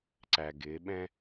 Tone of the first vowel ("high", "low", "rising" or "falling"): low